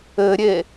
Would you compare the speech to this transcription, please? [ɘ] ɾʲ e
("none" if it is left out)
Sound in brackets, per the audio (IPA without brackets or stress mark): ɘ